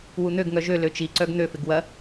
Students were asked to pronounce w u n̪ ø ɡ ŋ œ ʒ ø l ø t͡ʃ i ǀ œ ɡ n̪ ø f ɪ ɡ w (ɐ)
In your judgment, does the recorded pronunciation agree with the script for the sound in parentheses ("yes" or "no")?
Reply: yes